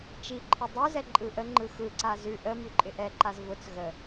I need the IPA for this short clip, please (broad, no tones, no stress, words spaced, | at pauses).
t͡ʃiǃʰɪ dˤʉzɛ ǃʼɯʔəŋ͡ǃɯ xɯǀa zʉ ʔəmʉ ǃʼɪʔɛǃaz vʊt͡s ɣə